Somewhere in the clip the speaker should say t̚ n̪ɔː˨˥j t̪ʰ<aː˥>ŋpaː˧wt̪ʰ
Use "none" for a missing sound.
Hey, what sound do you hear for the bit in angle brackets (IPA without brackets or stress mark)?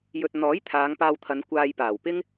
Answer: aː˨˧